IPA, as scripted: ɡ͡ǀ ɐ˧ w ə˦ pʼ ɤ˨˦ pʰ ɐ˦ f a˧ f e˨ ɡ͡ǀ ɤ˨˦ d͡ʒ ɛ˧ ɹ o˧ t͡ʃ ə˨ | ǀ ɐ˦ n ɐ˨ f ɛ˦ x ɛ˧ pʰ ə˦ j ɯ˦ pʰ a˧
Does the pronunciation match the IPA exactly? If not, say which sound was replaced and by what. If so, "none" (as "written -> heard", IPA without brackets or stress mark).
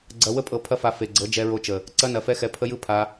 none